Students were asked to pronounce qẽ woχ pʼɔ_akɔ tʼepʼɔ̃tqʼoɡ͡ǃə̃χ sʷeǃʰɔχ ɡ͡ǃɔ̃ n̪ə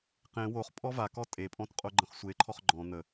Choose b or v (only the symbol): v